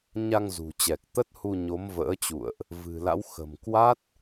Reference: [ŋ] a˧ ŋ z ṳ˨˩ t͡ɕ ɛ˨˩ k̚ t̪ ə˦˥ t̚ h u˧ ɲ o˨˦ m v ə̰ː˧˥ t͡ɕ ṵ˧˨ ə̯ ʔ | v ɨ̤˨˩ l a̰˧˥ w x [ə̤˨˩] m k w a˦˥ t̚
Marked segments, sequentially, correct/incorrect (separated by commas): incorrect, correct